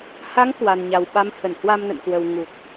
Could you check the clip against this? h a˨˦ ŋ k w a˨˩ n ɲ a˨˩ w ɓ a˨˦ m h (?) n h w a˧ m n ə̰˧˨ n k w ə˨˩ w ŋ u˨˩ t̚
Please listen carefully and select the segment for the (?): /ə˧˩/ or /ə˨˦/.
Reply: ə˧˩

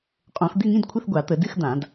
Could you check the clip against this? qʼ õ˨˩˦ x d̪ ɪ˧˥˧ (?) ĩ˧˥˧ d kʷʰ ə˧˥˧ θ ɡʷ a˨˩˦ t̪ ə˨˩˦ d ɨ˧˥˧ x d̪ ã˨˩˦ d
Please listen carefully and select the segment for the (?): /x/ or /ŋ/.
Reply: ŋ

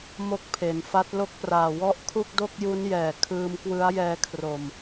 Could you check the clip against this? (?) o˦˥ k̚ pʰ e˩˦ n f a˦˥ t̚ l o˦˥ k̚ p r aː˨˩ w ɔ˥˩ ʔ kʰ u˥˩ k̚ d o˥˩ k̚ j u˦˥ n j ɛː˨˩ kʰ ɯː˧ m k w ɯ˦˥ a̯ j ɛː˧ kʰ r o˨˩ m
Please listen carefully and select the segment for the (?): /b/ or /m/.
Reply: m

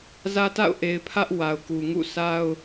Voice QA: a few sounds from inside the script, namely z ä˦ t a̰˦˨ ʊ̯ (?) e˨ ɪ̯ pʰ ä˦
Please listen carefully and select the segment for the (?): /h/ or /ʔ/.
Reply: ʔ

